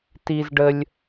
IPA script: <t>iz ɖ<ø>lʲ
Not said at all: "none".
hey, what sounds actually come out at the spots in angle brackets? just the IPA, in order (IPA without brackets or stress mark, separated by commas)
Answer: t, ə